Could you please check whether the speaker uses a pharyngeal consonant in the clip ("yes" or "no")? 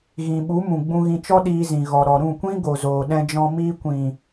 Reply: no